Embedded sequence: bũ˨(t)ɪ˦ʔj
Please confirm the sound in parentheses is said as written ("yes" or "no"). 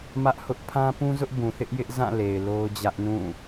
no